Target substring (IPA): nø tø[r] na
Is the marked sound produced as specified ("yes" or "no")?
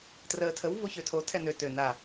no